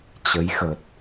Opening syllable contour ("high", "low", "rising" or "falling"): rising